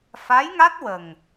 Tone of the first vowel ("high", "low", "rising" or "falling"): rising